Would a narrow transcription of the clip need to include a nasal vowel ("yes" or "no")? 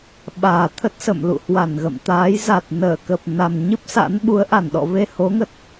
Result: no